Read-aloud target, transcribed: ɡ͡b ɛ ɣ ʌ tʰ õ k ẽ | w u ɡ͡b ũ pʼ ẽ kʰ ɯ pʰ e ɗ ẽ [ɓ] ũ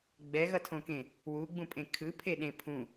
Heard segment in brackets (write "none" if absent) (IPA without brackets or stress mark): pʰ